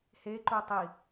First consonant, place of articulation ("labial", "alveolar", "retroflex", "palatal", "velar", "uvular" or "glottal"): glottal